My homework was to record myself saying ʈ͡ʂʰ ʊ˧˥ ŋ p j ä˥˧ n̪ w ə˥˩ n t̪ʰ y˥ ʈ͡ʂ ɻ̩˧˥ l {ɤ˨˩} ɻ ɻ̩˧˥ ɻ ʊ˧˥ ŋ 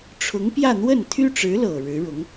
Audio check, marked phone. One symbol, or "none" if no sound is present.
ɤ˨˩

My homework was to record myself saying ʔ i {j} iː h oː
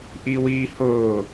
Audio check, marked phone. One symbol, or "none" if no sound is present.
w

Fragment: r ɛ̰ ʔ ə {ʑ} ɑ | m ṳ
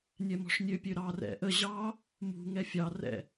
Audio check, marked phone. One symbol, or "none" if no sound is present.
ʑ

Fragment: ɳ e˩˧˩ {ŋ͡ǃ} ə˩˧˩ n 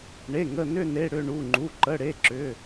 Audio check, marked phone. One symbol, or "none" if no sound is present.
ŋ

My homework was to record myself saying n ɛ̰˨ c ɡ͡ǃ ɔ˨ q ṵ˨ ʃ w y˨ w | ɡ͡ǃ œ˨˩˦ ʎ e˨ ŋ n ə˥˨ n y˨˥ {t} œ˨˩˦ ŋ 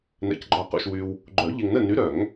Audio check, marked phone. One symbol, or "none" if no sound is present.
ɾ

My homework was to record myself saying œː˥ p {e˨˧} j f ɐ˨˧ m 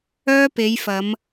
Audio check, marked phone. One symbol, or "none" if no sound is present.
e˨˧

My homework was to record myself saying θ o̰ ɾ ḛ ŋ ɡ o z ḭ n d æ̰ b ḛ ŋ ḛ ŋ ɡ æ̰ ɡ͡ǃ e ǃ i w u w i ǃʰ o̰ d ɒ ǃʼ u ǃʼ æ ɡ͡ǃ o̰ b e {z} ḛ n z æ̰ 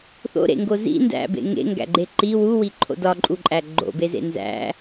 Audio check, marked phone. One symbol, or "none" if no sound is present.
z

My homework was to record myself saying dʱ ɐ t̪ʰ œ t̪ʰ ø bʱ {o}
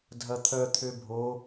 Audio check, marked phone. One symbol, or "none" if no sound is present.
o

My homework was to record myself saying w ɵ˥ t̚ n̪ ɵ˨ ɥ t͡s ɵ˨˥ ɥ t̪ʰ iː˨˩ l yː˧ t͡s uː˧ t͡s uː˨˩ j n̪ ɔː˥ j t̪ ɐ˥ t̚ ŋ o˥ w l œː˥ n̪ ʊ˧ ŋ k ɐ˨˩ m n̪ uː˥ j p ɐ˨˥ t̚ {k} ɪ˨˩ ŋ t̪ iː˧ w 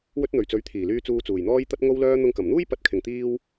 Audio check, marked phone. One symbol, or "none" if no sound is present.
kʰ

